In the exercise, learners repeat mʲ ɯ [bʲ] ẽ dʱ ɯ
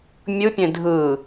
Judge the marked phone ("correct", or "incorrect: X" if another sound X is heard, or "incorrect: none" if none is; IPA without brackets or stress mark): incorrect: pʲ